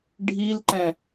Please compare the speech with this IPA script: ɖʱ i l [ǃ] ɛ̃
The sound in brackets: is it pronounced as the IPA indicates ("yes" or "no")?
yes